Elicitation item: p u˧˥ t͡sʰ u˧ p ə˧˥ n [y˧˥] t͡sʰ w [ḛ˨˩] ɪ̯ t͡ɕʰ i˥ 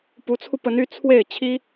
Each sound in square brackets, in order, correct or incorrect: correct, incorrect

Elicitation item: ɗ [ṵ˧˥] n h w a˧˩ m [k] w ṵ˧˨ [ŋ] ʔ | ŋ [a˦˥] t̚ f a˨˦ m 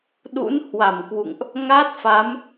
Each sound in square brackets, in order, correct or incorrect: correct, correct, correct, correct

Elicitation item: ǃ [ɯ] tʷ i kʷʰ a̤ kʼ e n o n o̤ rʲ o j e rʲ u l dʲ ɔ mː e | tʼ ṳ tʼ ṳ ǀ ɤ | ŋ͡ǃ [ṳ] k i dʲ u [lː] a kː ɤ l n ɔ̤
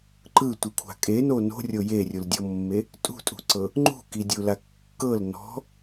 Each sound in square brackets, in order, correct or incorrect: correct, correct, incorrect

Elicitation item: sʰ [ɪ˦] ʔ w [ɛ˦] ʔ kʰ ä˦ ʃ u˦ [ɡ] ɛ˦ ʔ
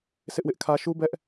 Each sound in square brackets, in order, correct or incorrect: correct, incorrect, incorrect

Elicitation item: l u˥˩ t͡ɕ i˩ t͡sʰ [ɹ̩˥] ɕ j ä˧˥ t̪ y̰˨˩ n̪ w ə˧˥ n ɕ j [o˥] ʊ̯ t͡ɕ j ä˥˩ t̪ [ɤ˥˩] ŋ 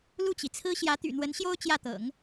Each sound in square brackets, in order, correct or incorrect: correct, correct, incorrect

